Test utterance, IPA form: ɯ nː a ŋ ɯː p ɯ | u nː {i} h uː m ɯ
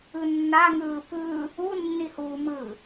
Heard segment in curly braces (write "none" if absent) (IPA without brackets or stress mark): i